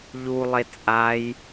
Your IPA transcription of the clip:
ʎ u lˠ e t͡sʼ a j

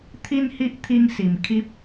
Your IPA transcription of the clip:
t̪ʰ i˦ n h i˦ ʔ t̪ʰ i˧ ŋ s i˨˩ m kʰ i˦ p̚

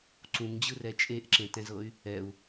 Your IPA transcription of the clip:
ǀ ũ ŋ d͡ʑ ɯ r ɛ t͡ʃʼ e ʔ ǁ ẽ t ɛ̃ z ɤ y̯ | ɛ u̯

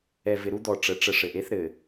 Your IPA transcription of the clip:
ɛ˨ v ɪ˨ ɾ u˦ d̪ ɔ˨ ʈ͡ʂ ə˨˦ ʈ͡ʂ ə˨ ʂ ɘ˨ ʔ e˦ θ ɾ ɘ˨

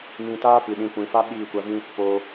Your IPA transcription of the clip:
m ĩ˧ t aː˦ p ɨ˨ ɗ ĩ˧ kʷ ĩ˨ f a˦ ɓ iː˦˨ kʷ a˧ v ĩ˦ | p oː˧

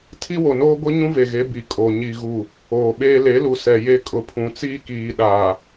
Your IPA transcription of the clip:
tʰ i˦ w o˨ n oː˦ ɡʷ i˦ ɲ ũ˦ v e˨ ɣ e˨˦ b i˨ kʼ o˨ ɲ i˨ ɣ u˨ | oː˨ ɓ eː˦ l e˨˦ l u˨ s ɛ˨ j e˦ kʼ ʊ˨ pʰ ũ˨ t͡s iː˦ k iː˨ ɗ aː˨

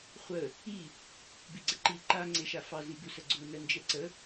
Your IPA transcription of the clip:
χʷ ə | i | b i ɡ͡ǀ ə ǃ i ǃ a ŋ͡ǀ e ʃ a f ɑ z i b u s ə ɡ͡ǀ u n ə n d͡ʒ ɛ ǀ ə

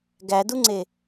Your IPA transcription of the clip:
ɡ æ d u ŋ͡ǀ e

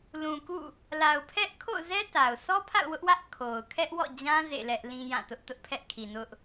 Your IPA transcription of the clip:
l ũ˨ k ṵ˦˨ | l a˨ ʊ̯ pʰ ɛ˦ ʔ kʰ o̰˦˨ ʊ̯ z ɛ˦ t a˨ ʊ̯ sʰ ɔ˦ pʰ a̰˦˨ ʊ̯ w ʊ˦ ʔ w ä˦ ʔ kʰ o˨ ʊ̯ kʰ ɛ˦ ʔ w ɔ̰˦˨ d͡ʑ ã˦ z ḛ˦˨ l ɛ˦ ʔ l ĩ˦ j ã˦˨ t ʊ˦ ʔ t ʊ˦ ʔ pʰ ɛ˦ ʔ kʰ i˨ n ʊ˦ ʔ

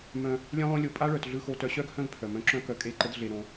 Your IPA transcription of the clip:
m œ̃˧ | lʲ œ̃˦ lˠ õ˦ lʲ o˧ pʼ a˦ ɭ œ˨ t ɮ ɯ˧ x o˧ t œ˧ ɕ œ˦ ɡ h œ̃˦ ɡ pʰ œ˨ m œ̃˧ ǁ œ̃˦ k œ˧ kʼ e˦˨ ǃ ə˦ d ɮ e˧ ɾ õ˧

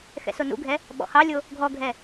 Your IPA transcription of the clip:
x ɛ̰ s o n ṵ ɡʱ ɛ | ɓ ɔ̰ h ɑ lʲ o | ɡʱ ɔ ɡʱ ɛ

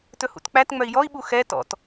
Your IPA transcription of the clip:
t ɵ h ṵ t k͡p æ t ŋ͡m œ i̯ j ɔ i̯ ɓ u x ɛ t ɔ̰ t

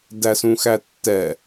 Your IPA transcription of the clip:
d æ s ũ x æ tː ɛ

